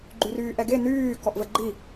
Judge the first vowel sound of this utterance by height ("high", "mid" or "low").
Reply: high